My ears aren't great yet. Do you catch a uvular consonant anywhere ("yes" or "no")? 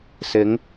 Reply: no